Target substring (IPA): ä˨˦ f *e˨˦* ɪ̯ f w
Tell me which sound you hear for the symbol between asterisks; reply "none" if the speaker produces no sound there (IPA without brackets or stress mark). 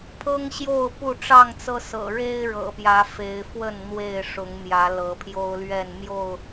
e˨˦